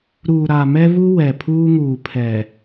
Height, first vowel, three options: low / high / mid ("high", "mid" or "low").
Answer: high